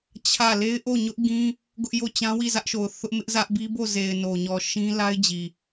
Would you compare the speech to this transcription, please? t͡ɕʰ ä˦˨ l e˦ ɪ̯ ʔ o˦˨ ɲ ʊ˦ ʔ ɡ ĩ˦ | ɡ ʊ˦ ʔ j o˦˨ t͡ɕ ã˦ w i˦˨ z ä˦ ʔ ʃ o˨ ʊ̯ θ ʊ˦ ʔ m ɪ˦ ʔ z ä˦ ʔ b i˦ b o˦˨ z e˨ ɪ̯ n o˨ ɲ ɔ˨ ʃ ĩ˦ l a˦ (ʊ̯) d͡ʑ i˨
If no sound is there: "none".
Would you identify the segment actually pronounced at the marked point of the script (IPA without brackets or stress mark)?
ɪ̯